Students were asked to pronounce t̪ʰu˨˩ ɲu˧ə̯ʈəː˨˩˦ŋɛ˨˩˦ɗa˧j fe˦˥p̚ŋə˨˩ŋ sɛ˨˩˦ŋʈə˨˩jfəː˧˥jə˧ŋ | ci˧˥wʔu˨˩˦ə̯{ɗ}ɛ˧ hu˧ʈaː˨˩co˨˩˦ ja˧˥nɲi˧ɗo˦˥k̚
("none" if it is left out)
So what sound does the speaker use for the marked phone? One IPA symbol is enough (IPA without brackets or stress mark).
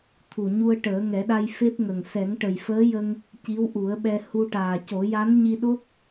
ɓ